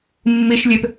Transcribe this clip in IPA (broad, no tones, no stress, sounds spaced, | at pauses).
mː i ʃ lʲ e p